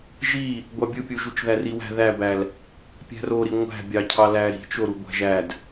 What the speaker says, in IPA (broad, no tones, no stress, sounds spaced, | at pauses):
ʒ i | ɡʷ ɑ bʲ ɯ pʲ u ʒ u t͡ʃ ð æ r i w æ̤ ð æ b æ l | pʲ æ̤ r o ɾ i ŋʷ æ̤ bʲ ɑ cʰ ɑ l æ ɾ i̤ t͡ʃ o ɾ u ɡʷ æ̤ ʒ æ d